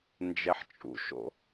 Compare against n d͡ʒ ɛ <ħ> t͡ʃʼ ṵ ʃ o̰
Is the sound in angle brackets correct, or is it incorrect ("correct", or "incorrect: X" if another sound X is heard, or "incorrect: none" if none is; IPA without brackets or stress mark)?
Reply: correct